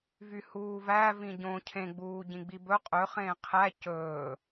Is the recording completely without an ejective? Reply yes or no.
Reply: no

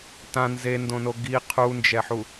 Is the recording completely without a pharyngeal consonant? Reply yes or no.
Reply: no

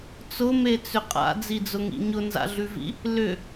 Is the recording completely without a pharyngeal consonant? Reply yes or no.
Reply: yes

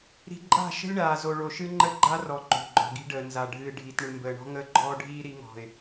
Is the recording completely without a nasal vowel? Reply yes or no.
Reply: yes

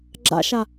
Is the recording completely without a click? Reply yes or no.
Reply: no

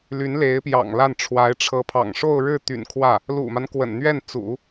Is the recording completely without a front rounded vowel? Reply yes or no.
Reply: no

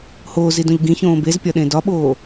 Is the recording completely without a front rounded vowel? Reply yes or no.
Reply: yes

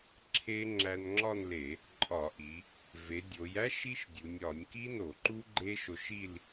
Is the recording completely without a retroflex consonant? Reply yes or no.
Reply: yes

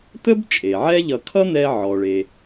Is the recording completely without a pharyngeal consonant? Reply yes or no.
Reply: no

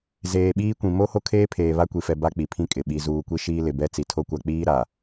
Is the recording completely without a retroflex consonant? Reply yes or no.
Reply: yes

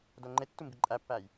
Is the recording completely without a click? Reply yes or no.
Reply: no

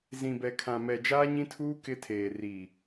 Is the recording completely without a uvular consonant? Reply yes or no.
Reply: yes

